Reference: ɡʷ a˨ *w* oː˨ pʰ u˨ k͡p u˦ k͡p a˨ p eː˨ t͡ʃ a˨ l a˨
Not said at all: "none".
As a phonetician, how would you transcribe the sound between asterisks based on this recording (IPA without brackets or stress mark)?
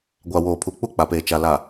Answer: w